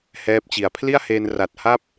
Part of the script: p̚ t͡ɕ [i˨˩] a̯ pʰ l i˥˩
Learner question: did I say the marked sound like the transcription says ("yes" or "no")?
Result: yes